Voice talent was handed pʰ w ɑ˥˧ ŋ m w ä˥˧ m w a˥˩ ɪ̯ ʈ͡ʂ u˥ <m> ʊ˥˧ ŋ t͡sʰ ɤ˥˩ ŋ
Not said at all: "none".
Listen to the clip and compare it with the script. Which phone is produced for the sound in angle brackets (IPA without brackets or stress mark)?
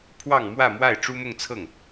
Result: m